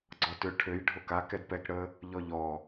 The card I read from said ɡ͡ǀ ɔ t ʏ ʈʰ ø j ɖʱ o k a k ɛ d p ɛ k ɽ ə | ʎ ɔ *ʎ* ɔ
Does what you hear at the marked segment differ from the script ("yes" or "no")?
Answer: no